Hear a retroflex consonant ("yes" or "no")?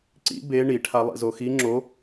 yes